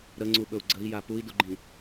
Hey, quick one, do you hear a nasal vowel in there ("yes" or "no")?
yes